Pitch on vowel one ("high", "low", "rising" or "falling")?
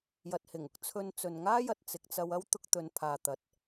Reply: low